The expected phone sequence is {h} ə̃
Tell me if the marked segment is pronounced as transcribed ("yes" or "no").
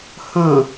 yes